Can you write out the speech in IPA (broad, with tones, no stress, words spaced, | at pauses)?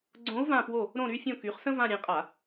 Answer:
ɡ͡ǀõ˧˥u̯vã˦˨pwo˦˨ | ɾõ˦˨ ɾy˧˥fʲõ˦˨ky˩˥χsə̃˥ vã˦˨ɾʲẽ˩˥ qʼa˧˩˧